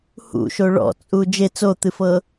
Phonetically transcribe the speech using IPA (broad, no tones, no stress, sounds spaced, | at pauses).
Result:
h ṵ ʃ o ɭ ɔ̰ t͡sʼ u d͡ʒ e t͡s o t̪ ɨ f ɤ